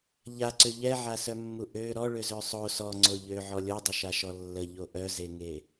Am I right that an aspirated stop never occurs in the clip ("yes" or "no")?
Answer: yes